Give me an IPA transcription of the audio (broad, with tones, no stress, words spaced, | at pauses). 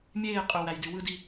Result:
mʲeː˦˨qʼø˨ wæ˨jdy˨wɯ˦di˦